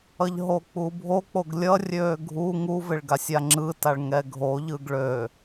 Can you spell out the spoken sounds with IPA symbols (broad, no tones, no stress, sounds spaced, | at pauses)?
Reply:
ʌ ʎ ɦ o k͡p u bʱ o k͡p o ɡ lʲ ʌ rʲ øː ɡʱ u ŋ u v ɪ ɭ ɡ a sʲ a ŋ͡ǁ ɯ t a ɭ ŋ ɛ ɡʱ o ʎ ɯ ɡ ɭ ø